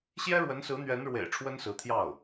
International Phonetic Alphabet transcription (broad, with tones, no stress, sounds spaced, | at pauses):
ɕ j ɛ˥ ɻ w ə˧˥ n s ɹ̩˧˥ n̪ ɥ ɛ˧˥ n ɻ w ḛ˨˩ ɪ̯ ʈ͡ʂʰ w ə˥ n s ɹ̩˧˥ t̪ʰ j ɑ˥˩ ʊ̯